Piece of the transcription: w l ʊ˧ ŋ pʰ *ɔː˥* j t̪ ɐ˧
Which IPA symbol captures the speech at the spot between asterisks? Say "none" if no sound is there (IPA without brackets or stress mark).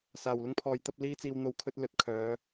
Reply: ɔː˨